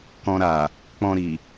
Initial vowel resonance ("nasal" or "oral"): nasal